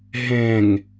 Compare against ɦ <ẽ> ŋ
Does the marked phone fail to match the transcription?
no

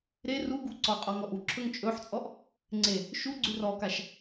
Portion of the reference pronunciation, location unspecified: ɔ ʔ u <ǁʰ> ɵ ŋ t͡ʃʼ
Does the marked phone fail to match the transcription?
no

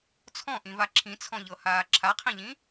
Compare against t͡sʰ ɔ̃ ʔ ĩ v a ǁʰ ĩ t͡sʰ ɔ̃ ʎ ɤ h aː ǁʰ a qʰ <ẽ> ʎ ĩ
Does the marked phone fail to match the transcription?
yes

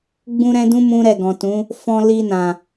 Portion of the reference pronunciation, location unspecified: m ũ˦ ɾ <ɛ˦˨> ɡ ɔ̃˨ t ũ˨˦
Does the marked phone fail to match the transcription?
no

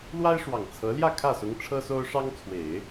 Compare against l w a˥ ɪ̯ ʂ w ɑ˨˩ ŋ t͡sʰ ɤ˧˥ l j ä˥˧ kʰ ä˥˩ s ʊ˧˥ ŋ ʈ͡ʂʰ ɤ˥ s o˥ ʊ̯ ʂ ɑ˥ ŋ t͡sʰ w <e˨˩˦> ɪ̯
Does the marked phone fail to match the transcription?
no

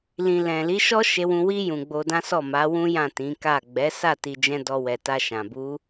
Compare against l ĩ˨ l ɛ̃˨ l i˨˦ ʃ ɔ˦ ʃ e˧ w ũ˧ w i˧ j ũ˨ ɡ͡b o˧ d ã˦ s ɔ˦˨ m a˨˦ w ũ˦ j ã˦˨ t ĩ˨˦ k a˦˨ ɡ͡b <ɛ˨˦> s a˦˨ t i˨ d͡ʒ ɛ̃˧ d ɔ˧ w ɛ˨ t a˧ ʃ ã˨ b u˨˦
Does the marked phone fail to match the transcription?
no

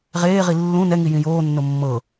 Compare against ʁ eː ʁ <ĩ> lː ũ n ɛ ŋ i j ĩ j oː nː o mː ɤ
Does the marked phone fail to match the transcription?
yes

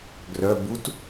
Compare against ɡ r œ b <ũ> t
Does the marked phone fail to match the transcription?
yes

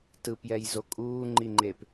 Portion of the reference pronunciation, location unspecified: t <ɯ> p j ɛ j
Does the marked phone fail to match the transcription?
no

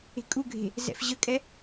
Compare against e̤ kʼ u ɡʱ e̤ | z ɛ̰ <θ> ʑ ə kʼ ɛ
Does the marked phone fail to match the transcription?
yes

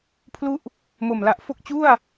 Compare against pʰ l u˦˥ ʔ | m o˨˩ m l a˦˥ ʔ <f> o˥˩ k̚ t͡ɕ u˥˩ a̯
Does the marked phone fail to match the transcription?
no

